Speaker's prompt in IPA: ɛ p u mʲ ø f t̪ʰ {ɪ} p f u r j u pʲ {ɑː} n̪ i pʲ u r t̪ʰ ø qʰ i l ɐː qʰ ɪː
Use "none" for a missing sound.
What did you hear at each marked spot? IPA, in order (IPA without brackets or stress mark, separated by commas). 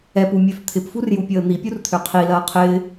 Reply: ɪ, əː